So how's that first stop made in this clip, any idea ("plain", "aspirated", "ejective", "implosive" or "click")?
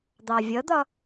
plain